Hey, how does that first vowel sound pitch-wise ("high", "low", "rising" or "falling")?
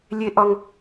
high